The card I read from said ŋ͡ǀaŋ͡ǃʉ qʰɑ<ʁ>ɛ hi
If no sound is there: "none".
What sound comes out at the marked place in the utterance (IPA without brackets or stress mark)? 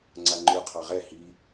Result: ʁ